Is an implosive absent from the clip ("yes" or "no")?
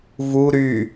yes